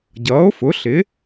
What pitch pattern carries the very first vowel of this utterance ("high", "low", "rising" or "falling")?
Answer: rising